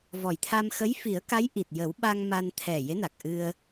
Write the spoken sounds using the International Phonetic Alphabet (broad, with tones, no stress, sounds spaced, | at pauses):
v ɔ˨˩ j t̪ʰ a˧ m x ə˧˥ j f i˨˩˦ ə̯ k a˧˥ j ʔ i˨˩ t̚ j ə˨˩˦ w ɓ a˧ ŋ m a˧ n t̪ʰ ɛ˨˩ j e˧˥ n a˨˩ k̚ ʔ ɨ˧ ə̯